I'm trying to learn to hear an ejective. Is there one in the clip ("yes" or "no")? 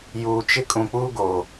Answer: yes